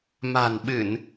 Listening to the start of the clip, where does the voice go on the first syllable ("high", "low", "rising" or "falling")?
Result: low